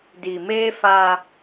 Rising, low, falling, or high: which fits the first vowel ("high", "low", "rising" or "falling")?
low